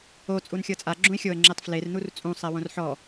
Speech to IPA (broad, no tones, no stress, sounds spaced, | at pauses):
o t͡sʼ u n xʲ ɤ t͡sʼ a ɡ͡ǁ ũ ɪ̯ xʲ o ə̯ ŋ͡ǁ e tˤ f l e r n u r t͡sʼ ũ sˤ ɛ w õ r ħ ɔ